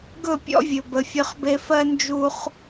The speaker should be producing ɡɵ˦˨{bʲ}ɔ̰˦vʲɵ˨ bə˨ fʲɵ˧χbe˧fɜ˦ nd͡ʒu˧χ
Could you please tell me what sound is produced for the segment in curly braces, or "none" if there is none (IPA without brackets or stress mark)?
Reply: pʲ